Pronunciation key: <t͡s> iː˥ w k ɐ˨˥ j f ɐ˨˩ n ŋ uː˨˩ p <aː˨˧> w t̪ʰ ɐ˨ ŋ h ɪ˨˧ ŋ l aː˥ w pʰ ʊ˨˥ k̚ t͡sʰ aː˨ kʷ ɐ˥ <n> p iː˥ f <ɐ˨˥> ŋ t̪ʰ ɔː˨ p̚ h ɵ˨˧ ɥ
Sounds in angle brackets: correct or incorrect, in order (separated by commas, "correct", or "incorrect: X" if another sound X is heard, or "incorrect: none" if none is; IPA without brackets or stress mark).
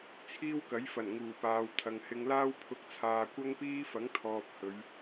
incorrect: t͡sʰ, incorrect: aː˨, incorrect: ŋ, correct